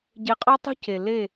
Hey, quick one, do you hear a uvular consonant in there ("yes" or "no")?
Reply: yes